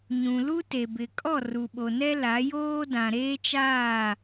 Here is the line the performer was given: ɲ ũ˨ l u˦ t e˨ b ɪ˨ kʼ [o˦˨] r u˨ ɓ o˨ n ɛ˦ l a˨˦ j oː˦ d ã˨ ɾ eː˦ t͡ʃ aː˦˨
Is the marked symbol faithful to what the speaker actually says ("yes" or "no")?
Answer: no